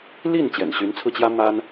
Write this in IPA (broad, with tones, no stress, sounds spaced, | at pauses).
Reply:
l i˥˩ n t͡ɕ j ɛ̰˨˩ n ɕ y˧˥ n t͡sʰ ɹ̩˧ t͡ɕ j ä˥ m a˥ n